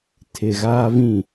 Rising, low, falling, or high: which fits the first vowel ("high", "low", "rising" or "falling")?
low